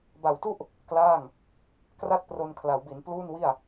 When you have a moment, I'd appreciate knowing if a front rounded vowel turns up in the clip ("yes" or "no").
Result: no